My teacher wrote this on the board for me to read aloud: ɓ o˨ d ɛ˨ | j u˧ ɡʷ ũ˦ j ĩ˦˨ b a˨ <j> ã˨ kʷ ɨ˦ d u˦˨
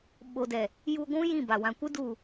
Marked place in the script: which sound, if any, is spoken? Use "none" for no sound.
w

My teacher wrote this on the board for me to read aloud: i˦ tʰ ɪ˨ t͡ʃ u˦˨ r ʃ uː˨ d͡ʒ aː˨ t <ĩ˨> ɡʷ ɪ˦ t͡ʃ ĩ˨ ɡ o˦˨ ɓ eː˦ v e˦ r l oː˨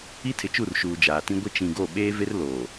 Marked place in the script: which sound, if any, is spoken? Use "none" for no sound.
ĩ˦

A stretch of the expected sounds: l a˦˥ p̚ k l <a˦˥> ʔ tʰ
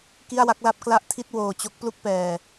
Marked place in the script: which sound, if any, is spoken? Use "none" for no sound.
a˥˩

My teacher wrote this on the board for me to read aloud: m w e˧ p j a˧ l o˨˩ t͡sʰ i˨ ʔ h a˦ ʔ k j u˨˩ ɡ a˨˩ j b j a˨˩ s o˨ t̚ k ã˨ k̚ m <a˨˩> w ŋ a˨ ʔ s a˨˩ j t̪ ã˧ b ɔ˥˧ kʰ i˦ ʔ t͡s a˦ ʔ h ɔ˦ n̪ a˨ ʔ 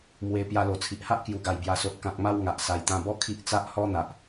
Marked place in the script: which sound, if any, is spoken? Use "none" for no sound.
a˦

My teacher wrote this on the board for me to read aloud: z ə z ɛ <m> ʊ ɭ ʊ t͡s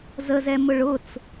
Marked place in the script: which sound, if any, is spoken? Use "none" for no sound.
m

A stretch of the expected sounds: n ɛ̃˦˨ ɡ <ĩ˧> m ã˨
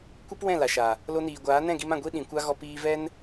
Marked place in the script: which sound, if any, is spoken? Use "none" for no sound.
i˧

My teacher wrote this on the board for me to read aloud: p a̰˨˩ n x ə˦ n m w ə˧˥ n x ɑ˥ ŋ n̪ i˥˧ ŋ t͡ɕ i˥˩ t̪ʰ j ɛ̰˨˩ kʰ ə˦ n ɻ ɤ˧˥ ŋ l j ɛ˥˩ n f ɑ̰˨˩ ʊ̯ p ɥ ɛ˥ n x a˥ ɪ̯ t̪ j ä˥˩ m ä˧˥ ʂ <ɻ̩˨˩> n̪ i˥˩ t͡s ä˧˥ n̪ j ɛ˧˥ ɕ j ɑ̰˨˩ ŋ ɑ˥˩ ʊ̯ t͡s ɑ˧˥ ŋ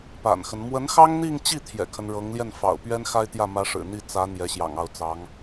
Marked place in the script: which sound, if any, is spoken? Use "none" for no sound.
ɻ̩˨˩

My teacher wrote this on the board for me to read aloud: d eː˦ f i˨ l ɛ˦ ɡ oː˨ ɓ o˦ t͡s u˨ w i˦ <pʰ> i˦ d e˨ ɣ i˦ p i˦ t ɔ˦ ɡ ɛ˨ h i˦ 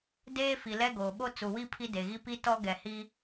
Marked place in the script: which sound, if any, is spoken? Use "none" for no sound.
pʰ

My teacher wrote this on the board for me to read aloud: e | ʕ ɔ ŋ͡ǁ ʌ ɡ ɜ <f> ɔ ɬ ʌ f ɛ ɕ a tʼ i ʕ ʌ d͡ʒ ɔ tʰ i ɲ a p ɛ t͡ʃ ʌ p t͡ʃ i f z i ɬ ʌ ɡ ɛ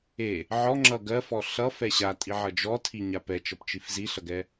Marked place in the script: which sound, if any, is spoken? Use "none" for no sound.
f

